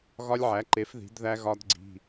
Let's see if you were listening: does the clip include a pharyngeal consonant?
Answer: yes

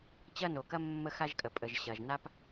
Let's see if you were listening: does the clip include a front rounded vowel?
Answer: no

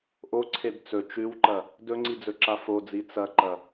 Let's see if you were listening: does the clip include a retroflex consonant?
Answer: no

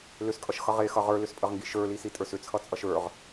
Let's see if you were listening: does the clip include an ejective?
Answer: yes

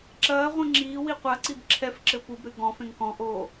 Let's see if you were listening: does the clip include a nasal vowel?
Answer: yes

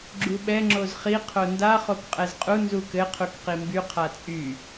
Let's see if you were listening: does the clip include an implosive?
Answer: yes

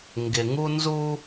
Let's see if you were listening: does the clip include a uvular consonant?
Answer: no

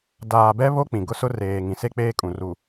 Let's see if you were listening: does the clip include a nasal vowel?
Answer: yes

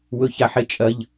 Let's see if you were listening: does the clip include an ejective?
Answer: yes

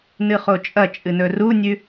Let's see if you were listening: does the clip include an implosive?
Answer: no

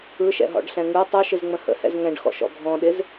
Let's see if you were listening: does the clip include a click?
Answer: no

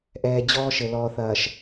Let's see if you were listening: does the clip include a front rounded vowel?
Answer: no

